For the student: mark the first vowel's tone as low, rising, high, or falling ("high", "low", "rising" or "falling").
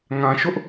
low